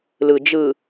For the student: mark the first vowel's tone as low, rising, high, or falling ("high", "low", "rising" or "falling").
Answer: low